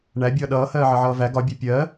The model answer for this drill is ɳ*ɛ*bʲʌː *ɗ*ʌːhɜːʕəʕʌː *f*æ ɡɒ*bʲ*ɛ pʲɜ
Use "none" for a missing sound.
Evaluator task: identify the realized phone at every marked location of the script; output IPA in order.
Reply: æ, ɗ, v, bʲ

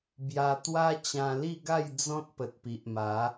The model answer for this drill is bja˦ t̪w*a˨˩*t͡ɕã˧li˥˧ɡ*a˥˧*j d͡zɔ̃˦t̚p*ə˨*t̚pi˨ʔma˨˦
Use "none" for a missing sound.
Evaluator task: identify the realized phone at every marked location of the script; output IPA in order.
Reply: a˦, a˥˧, ə˨

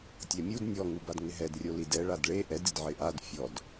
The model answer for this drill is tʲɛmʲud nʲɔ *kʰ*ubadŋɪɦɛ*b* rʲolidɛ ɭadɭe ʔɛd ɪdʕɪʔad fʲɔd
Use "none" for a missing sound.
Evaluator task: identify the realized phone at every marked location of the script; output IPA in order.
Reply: ŋ, d

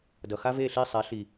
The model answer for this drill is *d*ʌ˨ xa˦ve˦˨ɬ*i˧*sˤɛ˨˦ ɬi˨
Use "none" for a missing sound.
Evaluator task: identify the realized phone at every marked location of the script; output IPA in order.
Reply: d, i˦˨

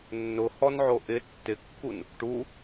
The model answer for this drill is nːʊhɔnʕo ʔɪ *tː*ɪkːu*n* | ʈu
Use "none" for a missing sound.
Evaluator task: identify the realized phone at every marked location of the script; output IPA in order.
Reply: tː, n

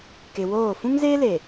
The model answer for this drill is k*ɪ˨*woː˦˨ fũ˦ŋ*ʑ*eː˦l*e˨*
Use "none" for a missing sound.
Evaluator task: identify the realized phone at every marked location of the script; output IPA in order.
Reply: ɪ˨, z, e˨

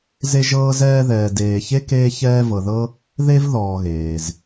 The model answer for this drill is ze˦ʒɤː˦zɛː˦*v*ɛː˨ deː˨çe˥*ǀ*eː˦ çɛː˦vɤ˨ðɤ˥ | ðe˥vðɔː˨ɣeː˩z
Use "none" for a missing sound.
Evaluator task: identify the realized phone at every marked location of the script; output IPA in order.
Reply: ð, k

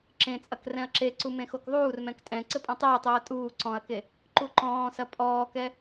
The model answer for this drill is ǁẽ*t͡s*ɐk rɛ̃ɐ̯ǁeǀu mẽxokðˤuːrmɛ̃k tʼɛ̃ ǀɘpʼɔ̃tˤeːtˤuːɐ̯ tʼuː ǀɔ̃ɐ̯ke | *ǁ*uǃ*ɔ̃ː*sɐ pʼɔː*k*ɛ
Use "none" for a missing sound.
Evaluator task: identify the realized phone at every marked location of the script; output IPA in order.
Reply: t͡sʼ, ǃ, ɔ̃ː, k

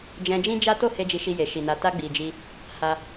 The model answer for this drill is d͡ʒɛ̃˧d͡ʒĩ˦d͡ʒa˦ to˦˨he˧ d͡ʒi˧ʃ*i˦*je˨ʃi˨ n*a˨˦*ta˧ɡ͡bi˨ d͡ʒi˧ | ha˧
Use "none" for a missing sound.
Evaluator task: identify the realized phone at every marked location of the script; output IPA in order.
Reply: i˧, a˨

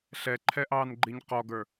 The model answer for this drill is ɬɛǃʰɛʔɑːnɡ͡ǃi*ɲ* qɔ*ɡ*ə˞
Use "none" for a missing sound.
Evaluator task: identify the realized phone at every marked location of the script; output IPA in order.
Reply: ɲ, ɡ

